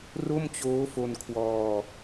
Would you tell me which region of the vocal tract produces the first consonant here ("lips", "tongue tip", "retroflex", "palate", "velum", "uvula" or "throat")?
tongue tip